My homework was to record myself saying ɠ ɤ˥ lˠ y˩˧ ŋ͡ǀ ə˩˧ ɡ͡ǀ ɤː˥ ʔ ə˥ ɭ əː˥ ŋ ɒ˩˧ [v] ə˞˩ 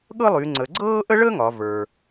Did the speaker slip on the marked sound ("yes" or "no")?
no